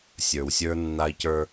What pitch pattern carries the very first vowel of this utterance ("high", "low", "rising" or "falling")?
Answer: low